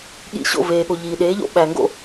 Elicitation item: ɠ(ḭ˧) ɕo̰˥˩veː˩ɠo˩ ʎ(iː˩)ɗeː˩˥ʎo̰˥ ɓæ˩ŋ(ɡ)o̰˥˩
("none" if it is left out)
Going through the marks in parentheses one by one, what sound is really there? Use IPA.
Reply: ḭ˧, iː˩, ɡ

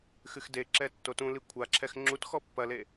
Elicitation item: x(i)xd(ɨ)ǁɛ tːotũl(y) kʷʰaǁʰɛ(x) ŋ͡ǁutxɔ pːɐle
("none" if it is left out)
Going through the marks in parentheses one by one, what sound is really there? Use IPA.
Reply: ɨ, e, i, x

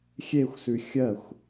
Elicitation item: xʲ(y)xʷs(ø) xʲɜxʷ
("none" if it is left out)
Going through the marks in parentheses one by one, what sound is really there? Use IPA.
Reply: e, ʉ

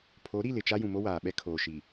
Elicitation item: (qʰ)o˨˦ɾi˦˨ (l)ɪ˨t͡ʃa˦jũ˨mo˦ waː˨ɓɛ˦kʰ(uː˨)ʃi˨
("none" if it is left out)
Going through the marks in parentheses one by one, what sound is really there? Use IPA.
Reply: pʰ, l, oː˨

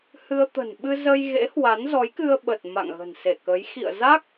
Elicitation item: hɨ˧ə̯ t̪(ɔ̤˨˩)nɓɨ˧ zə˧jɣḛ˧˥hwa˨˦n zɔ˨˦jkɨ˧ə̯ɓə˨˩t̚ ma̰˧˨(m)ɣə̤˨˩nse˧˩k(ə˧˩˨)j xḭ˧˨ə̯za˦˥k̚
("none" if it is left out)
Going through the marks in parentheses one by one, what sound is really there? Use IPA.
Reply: ə̤˨˩, ŋ, ə˨˦

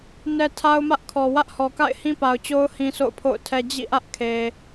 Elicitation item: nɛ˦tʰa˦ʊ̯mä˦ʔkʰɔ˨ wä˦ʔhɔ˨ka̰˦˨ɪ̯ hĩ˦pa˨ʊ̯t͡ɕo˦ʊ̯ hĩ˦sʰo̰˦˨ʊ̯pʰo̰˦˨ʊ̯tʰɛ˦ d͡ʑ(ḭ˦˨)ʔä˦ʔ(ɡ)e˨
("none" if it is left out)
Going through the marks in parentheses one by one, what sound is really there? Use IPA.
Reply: ḭ˦˨, kʰ

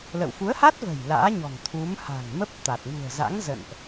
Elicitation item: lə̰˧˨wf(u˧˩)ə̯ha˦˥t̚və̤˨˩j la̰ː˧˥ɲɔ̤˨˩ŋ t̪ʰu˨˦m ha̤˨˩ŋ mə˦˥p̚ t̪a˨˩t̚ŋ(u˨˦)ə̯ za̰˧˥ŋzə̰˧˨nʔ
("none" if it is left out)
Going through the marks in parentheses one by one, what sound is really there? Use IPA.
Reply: u˨˦, ṳ˨˩

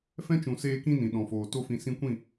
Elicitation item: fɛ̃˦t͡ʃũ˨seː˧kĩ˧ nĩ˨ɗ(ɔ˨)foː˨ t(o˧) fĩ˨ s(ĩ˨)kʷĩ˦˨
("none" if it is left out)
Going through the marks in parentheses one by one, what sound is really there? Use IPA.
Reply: ɔ̃˨, o˧, ĩ˧

